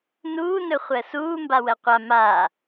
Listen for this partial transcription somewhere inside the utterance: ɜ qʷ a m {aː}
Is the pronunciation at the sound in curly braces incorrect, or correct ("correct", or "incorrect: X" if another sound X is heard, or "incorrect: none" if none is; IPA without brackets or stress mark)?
correct